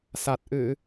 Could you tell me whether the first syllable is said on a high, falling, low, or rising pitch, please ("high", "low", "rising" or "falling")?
low